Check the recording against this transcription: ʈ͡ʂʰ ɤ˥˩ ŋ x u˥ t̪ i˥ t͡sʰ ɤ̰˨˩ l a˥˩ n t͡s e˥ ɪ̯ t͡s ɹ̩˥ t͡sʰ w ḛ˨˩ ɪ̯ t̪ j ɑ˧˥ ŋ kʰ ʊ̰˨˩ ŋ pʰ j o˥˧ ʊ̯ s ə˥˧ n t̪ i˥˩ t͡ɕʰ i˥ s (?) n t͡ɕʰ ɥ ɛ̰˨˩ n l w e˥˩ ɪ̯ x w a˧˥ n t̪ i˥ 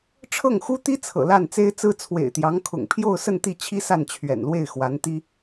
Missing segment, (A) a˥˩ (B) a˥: A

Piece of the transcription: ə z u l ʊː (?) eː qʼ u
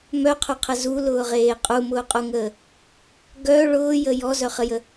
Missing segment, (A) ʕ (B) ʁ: B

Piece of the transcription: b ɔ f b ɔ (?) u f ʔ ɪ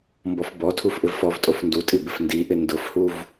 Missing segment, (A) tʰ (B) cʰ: A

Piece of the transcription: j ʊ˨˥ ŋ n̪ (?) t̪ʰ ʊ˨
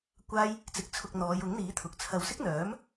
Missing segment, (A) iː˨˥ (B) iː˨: A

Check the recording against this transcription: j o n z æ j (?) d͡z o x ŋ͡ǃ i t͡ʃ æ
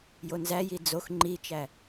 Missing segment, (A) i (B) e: A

